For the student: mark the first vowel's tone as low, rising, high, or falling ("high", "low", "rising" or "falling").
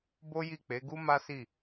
high